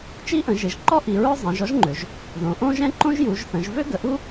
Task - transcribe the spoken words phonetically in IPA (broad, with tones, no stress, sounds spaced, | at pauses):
t͡ʃ i˥ ʔ ə̃˩˧ ʒ e˩˧ ʒ ǃ ɔ˥ ʔ i˩˧ ɹ œ˥ zˤ ɛ̃˩˧ ʒ ɔ˥ ʒ ŋ͡ǃ ø˩˧ ʒ | ð õ˩˧ ʔ õ˥ ʒ ɛ̃˥ ǃ õ˥ ʒ j u˩˧ ʒ θ ə̃˩˧ ʒ v ø˥ ɡ ə˩˧ ʔ u˥